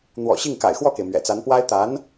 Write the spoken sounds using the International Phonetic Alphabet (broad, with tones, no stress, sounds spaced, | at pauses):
n̪ w ɔ̰˨˩ ɕ i˥˩ ŋ k a̰˨˩ ɪ̯ x w ɔ˥˩ k e˩ ɪ̯ m ɥ ɛ̰˨˩ t͡s a˧˥ n p w a˥ ɪ̯ t̪ a˧˥ n